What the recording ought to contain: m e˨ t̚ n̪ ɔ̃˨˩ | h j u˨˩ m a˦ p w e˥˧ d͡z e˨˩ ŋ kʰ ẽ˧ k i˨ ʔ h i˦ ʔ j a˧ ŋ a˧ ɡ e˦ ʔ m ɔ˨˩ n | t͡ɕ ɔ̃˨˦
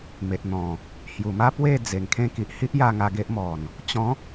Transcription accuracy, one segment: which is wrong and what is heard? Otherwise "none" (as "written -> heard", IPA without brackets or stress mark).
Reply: none